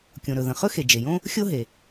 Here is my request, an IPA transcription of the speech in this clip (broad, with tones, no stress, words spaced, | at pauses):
kʲõ˩ɾɵ˩ðə̃˩ χɵ˥xe˩d͡ʒe˩jõ˥ | xʲo˥ɦe˩